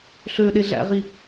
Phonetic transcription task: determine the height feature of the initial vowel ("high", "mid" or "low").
mid